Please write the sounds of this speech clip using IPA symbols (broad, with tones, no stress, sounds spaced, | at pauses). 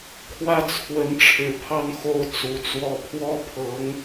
kʰ w ä˥˩ t͡sʰ w ə˧˥ n ʈ͡ʂʰ ɻ̩˨˩ pʰ ɑ˥˧ ŋ x o˥˩ ʊ̯ t͡s u˧˥ t͡s w ɔ˥˩ pʰ w ɔ˥ pʰ ɤ˧˥ ŋ